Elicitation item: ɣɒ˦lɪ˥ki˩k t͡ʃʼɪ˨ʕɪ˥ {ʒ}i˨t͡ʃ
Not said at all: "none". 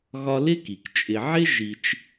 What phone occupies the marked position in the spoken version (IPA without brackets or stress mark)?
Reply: ʒ